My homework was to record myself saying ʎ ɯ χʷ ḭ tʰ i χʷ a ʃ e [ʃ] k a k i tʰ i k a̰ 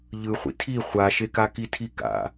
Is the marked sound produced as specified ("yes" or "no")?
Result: no